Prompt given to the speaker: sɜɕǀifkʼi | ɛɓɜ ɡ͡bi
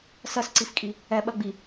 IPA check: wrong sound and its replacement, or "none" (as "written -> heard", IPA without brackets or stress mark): ɕ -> s